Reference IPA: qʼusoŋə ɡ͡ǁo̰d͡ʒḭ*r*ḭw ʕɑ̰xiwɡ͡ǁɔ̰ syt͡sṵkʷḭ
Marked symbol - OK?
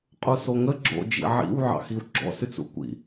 no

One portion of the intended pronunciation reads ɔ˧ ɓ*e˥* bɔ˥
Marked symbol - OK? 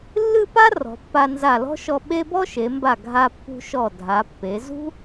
yes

